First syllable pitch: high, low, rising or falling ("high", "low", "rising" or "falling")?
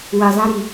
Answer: low